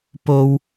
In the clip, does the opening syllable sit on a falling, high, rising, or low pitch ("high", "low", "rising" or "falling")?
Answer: high